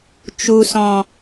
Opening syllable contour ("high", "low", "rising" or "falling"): low